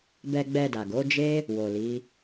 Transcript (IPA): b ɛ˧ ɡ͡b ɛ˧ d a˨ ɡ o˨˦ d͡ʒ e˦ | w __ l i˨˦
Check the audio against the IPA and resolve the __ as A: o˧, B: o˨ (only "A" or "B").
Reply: B